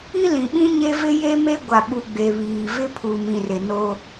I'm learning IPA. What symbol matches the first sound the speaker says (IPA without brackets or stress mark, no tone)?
i